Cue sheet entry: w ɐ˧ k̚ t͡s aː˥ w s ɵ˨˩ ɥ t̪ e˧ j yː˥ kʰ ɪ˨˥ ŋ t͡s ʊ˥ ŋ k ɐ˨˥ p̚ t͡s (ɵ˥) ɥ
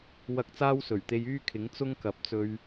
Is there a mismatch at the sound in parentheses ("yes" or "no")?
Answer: yes